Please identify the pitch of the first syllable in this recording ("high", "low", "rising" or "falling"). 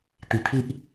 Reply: low